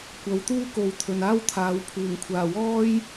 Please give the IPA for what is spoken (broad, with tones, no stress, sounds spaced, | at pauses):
kʷ ɐ˨˧ w t̪ uː˥ k o˨ w t̪ʰ ɵ˨ n aː˥ w t̪ʰ aː˨˥ w pʰ uː˨˩ ŋ kʷʰ aː˨˩ w ɔː˥ j